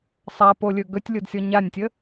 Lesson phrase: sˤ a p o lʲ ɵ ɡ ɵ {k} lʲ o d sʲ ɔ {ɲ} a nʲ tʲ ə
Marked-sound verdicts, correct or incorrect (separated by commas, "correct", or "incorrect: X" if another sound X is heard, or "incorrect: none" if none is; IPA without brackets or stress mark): incorrect: tʲ, correct